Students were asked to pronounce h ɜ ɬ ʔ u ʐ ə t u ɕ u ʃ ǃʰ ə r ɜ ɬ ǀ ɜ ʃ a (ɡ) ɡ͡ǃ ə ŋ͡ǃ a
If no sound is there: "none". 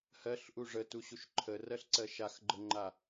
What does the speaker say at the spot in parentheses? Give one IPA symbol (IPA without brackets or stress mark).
x